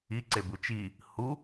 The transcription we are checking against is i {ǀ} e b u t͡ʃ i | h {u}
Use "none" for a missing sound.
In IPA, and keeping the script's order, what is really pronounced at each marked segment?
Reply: ǀ, u

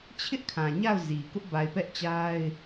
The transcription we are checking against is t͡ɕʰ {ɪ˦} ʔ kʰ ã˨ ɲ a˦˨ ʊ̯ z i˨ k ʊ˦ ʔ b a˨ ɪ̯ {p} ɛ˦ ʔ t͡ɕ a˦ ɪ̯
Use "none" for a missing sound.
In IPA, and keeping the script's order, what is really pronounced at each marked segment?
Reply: ɪ˦, p

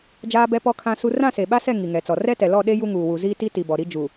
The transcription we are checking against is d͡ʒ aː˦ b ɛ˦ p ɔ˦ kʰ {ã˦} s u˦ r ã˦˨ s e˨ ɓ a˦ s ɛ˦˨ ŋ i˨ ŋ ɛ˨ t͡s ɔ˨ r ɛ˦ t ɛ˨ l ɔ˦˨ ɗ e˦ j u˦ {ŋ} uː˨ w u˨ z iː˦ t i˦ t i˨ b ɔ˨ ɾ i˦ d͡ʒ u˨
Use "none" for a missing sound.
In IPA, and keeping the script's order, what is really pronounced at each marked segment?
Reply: ã˦, ŋ

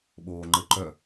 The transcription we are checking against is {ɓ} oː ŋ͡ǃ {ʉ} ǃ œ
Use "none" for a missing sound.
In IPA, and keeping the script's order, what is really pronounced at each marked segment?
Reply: ɓ, ɘ

